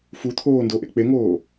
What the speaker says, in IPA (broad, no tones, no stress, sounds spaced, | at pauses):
f u t̪ʰ oː n d o ʔ ḛ k͡p e ŋ oː